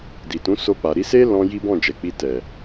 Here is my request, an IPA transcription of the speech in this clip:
d i˨ t ũ˨˦ s o˧ k͡p a˨ ɾ i˧ s e˦ l ɔ̃˧ j i˦ b ɔ̃˦˨ d͡ʒ ɛ˨ k͡p i˧ t ɛ˨

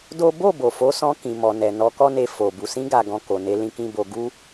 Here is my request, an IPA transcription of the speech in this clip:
d o˦ b o˦˨ b o˨ f o˨˦ s ɔ̃˧ k ĩ˨ m ɔ˨ n ɛ˨ n ɔ˧ k ɔ˦ n e˧ f o˨ b u˨ s ĩ˧ ɡ a˨ ɡ ɔ̃˨ k o˨ n e˧ l ĩ˧ k ĩ˦ b o˧ ɡ u˦

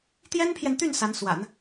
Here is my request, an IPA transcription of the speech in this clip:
t̪ j ɛ˥ n pʰ j ɛ˨ n t̪ y˥˩ n s a˧˥ n s w a̰˨˩˦ n

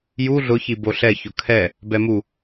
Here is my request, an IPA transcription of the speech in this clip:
j u ɮ ʊ ç i b o ɬ ɛ ç ʊ kʰ ɛ | b ɛ m u

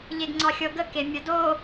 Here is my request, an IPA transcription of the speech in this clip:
ʎ e ɡ ŋ͡ǀ ɑ xʲ ɤ ɡ ə k e mʲ ə d o

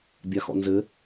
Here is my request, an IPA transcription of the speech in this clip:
bʲ a x ɔ̰ n z ɘ

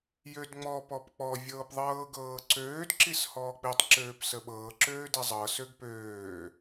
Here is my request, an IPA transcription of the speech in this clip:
j ø d ŋ͡m ɔ p ɔ p k͡p ɔ vʲ ɤː p ðˤ ɤː ɡ ɤː ǀ øː d ǁ i s h ɔː k͡p i tˤ ǁ øː p s ə ɓ ɤː ǁ øː d i zˤ ɤ s ø ɡ p øː

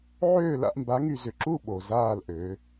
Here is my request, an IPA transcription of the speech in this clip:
ʕ øː˦˨ l a̰˦˨ ʔ m b a˨˦ ŋ y˨ z ʏ˨ ǁ u˦˨ ɓ o˨ z aː˦˨ l ʔ ø˨˦

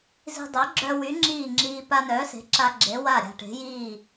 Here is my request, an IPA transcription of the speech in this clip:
z i̤˧ dˤ ø˩˥ ɡ͡ǁ œ˧ w y˩˥ ŋ͡ǁ iː˥˩ ŋ͡ǁ iː˧ p a˧ n œː˩˥ s e̤˩˥ ǁ a˧ ɡ͡ǁ e˩˥ w a˥˩ ɾʲ a̤˧ ʈ e̤˩˥ j iː˥˩

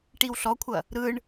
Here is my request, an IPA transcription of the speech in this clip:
ʈ i w ɬ ɔ kʷʰ ɐ | ɾ ɯ ɳ

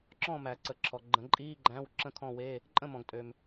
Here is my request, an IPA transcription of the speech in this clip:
ǁ ɔ̃˥˨ m æ˨˩˦ ǀ ə˨ ǁʰ ɔ˨ ɡ͡ǃ ə̃˨˩˦ ǃʼ iː˧˥˧ ɡ͡ǃ æ̃˧˥˧ w ǁ ə̃˥˨ kʰ ɔ̃˥˨ w e˧˥˧ | ǃʼ ə̃˥˨ m ɔ̃˨ ɡ tʼ ø˨ m

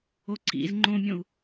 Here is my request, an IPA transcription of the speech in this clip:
o ǀ ḭ z ŋ͡ǃ õ mʲ õ u̯

